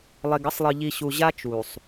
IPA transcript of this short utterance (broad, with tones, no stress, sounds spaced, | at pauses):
lˠ e˨ ɡ ʌ˦ sˤ lˠ ɯ˨ ʎ i˨ ɕ u˨ ʑ a˦ t͡ʃ u˨ sˤ